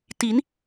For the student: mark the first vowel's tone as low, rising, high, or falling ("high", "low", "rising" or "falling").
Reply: rising